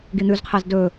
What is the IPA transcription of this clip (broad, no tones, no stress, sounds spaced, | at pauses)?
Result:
ɡ i n̪ ʉ z qʰ e z d ɵ